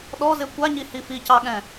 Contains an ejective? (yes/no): no